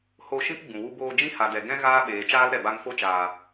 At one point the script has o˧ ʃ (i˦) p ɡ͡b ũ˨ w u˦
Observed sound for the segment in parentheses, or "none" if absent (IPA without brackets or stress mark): ĩ˦